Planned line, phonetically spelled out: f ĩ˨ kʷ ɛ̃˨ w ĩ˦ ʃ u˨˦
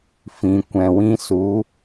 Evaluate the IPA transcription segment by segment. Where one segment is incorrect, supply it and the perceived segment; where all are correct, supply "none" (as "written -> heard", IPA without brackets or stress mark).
ʃ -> s